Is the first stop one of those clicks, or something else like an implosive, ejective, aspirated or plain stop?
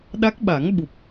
implosive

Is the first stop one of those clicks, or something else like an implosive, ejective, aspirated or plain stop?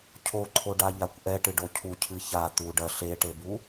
aspirated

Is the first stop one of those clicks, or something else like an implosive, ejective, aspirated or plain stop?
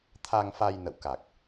aspirated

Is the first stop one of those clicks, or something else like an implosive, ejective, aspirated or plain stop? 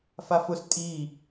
ejective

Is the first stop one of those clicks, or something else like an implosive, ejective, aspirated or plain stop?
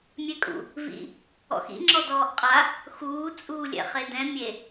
ejective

